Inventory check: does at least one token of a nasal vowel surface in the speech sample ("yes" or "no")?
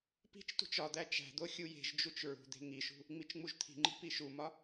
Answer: no